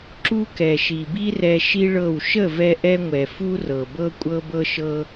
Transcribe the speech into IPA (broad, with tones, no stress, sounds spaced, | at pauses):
ǁ u˧ k ɛ˨ ʃ i˨ b i˦ r ɛ˧ ʃ i˦ ɭ ɤ˦˨ w ʃ ə˦˨ v ɛ˧ ʔ ɛ˧ ŋʷ ɛ˨ f u˦ r ɤ˨ b ɤ˦ kʷʼ ɤ˦ b ɤ˦ ʃ ɤ˦